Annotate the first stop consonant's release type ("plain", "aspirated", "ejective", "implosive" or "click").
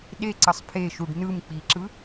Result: implosive